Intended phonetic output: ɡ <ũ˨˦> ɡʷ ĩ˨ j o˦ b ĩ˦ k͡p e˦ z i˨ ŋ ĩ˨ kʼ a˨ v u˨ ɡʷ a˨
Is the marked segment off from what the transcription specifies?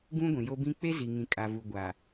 yes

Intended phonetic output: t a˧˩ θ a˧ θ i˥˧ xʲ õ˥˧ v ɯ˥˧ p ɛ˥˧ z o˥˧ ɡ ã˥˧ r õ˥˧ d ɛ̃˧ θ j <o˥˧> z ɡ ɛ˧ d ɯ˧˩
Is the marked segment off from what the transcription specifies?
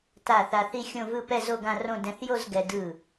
no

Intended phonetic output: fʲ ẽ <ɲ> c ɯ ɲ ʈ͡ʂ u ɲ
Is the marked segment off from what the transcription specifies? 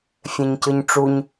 no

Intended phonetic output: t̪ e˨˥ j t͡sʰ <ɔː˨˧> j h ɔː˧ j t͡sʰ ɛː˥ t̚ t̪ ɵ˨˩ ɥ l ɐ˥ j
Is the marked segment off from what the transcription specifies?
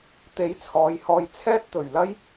no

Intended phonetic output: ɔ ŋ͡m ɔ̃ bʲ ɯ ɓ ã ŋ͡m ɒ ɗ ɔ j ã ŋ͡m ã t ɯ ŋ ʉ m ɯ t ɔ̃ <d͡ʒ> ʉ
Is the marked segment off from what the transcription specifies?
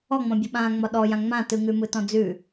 yes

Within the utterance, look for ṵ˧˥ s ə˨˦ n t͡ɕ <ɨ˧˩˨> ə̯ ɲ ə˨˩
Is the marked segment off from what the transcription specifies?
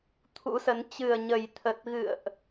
yes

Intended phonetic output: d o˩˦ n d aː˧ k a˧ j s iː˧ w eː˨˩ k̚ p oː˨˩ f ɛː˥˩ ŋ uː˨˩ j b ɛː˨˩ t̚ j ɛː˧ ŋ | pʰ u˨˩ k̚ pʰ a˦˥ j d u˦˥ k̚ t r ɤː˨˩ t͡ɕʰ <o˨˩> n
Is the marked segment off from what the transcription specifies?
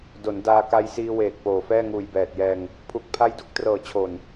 no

